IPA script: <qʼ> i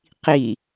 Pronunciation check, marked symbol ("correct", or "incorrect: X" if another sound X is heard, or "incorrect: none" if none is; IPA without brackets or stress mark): incorrect: q